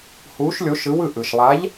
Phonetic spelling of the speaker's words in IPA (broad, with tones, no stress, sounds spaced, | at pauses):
h uː˧˥ ʃ lʲ o˧˥ ʃ ɯ˧˥ w ɯ˥˧ ʔ ɯ˨ ʃ lˠ a˧˥ ʎ